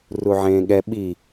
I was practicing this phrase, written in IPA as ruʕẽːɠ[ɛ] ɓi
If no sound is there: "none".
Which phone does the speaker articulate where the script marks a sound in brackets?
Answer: ɛ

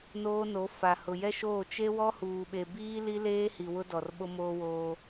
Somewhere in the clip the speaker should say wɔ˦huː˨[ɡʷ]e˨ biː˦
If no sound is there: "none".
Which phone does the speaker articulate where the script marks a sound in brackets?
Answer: ɓ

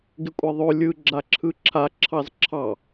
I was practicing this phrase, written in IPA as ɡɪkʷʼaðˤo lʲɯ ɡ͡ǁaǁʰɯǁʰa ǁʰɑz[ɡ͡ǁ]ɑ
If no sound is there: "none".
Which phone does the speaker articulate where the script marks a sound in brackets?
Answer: ǁʰ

